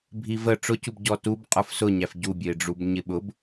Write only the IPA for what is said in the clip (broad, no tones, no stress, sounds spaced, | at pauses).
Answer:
bʱ i v ə ʈ͡ʂ ʊ c u b ɟ ɔ t u b qʼ ə˞ f s ʊ ɲ æ f ɟ u bʲ ə ɪ̯ ɖ͡ʐ u b ɲ ɪ ɓ ʊ b